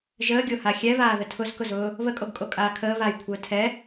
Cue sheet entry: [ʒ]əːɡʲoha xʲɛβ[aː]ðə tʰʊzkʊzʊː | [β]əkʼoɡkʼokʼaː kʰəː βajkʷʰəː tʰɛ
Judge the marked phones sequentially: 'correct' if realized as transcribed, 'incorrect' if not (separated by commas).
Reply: correct, correct, correct